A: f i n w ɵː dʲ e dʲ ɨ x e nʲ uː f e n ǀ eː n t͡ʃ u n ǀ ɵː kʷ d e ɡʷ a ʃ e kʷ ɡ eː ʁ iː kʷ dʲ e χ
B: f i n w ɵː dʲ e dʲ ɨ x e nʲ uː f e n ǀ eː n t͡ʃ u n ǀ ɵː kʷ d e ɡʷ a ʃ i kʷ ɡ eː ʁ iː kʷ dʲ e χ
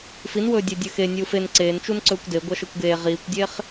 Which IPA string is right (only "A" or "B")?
A